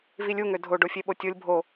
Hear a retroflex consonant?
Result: yes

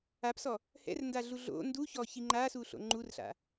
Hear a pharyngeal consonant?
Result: no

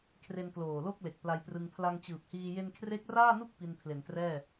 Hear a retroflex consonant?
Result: no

